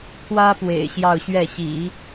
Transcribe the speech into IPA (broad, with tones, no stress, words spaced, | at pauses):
pʰwä˥pwḛ˨˩ɪ̯ ɕjɑ˥˧ʊ̯ɕɥɛ˥˩ɕḭ˨˩˦